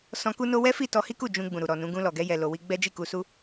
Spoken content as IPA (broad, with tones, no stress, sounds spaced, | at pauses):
s ɔ̃˧ k u˦ n o˦ w ɛ˦ f i˦˨ t ɔ˧ h i˦ k u˦˨ d͡ʒ ũ˧ ɡ͡b ũ˨ ɾ u˨ ɾ ɔ˨ n ũ˨˦ ɡ ũ˧ l ɔ˨ ɡ ɛ˧ j ɛ˨ l o˨ w i˧ ɡ͡b ɛ˦ d͡ʒ i˦˨ k u˧ s u˦